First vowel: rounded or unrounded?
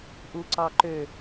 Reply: rounded